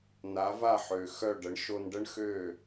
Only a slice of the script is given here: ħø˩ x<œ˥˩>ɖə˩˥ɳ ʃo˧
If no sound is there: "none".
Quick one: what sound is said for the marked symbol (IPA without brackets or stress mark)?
œ˥˩